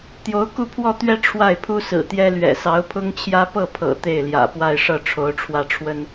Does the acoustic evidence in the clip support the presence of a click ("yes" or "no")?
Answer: no